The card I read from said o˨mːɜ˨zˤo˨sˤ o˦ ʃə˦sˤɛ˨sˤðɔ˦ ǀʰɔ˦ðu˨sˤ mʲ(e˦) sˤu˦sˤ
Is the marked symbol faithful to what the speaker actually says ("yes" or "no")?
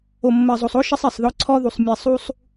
no